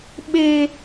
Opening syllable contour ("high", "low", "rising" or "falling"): high